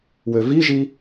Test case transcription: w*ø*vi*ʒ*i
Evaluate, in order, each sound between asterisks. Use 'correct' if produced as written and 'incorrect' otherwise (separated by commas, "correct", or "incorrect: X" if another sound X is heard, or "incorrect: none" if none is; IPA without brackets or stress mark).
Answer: correct, correct